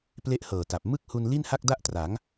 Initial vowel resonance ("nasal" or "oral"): oral